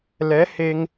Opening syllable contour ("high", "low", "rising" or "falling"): rising